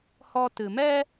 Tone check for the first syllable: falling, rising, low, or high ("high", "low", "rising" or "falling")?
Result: high